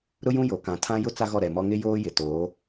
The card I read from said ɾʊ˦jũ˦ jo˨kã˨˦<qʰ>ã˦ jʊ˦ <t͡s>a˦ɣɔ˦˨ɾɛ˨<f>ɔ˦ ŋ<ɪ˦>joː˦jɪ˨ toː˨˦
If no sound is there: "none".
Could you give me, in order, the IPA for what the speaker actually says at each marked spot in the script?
tʰ, t͡s, m, ɪ˦

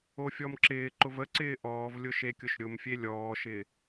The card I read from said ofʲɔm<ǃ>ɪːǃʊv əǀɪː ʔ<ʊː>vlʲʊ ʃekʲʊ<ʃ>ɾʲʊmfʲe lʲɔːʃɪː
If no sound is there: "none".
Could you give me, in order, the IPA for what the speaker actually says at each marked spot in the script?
ǁ, ɔː, ʃ

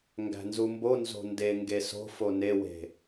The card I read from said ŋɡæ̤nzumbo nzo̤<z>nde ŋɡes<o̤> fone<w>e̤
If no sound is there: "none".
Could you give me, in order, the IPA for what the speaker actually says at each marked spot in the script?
none, o̤, w

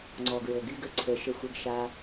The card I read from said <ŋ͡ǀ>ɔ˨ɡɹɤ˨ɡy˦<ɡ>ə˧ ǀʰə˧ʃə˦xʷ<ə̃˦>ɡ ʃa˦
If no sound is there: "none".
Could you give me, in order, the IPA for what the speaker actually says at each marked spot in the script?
ŋ͡ǀ, ɡ, ə˦

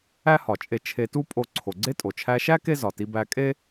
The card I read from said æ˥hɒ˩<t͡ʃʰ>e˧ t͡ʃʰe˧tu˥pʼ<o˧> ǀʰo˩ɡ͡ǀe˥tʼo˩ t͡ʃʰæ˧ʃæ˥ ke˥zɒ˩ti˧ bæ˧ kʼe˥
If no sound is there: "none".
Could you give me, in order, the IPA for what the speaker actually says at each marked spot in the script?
t͡ʃʼ, o˧

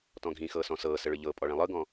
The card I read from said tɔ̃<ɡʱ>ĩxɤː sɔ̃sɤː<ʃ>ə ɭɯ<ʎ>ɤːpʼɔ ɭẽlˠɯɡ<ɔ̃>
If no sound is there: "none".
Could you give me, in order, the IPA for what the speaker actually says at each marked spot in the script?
ɡʱ, s, ʎ, ɔ̃

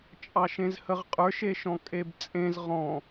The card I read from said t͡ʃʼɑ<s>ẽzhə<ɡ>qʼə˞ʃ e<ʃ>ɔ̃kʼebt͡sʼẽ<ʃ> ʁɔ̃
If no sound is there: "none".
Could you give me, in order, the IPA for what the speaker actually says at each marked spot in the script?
ʃ, ʁ, ʃ, z

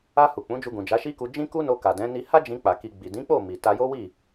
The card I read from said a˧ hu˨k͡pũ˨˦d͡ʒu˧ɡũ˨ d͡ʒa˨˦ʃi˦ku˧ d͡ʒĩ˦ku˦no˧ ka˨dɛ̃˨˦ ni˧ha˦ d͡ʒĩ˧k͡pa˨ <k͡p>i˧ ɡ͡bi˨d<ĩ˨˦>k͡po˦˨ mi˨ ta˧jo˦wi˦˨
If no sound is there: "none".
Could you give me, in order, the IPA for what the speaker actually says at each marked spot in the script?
k, ĩ˨˦

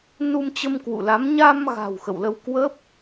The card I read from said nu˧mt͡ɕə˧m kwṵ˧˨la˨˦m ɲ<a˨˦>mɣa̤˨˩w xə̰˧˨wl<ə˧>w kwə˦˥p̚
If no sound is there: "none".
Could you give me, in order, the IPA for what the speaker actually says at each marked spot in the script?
a˧, ə˧

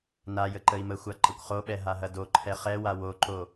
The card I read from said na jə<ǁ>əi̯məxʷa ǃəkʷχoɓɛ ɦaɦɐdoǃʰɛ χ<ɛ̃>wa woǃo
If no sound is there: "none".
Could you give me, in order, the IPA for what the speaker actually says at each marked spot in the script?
ǃ, ɛ

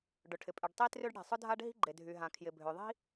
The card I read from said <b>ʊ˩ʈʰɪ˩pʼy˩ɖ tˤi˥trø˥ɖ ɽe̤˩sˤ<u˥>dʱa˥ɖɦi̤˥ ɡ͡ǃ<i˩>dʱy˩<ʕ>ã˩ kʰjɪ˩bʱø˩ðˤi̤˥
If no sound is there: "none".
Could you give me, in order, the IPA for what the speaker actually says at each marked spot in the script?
ɖ, ʊ˥, e˩, ɦ

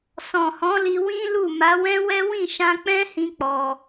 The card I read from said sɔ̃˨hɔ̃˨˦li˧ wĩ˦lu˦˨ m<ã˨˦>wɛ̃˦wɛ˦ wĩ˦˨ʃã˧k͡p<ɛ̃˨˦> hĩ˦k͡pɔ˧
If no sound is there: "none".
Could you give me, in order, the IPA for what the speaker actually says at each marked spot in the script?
a˨˦, ɛ̃˦

